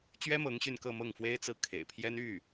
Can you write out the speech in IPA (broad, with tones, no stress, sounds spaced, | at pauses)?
t͡ɕ ɥ ɛ˥ m ɤ˧˥ ŋ ɕ y˥˧ n k ɤ˥˧ m ɤ˥˩ ŋ f w e˥ ɪ̯ t͡s ɹ̩˥˩ kʰ ḛ˨˩ ɪ̯ pʰ j ɛ˥ n y˥˩